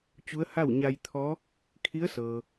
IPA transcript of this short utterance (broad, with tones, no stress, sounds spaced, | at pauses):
t͡ɕ u˧˥ ə̯ h a˥˨ w ɲ a˧ j t̪ʰ ɔː˧˥ | kʰ i˧˥ ə̯ s ɤː˩